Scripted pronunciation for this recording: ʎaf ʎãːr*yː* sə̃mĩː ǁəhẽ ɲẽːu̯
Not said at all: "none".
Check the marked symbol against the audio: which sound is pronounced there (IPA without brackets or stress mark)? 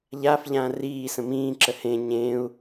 iː